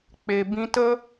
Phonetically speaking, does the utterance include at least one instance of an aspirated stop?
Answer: no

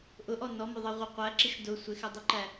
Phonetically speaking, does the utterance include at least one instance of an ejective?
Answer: no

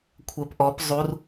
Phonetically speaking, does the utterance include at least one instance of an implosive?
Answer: no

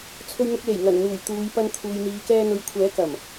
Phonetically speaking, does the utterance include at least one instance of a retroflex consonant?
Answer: no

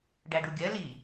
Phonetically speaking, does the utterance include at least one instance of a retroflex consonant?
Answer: yes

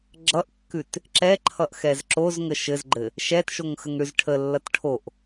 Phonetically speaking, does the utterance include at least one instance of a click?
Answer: yes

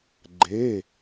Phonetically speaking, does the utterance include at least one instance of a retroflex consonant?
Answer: no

